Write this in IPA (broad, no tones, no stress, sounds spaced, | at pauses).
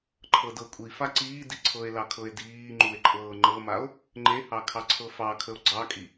ǃʰ ɤ d ɤ kʷʼ i f a ǀ iː d i ǀʰ ɤ e̯ l ɑ kʰ ɤ e̯ d iː ŋ͡ǃ u e̯ ǃʼ ɤː ŋ͡ǃ ɤ m a o̯ | ŋ͡ǃ e h ɑ kʰ ɑ ǀʰ ɤ f ɑ kʰ ə o̯ ɡ͡ǀ ɑ kʼ i